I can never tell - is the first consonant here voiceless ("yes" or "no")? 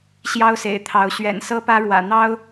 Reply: yes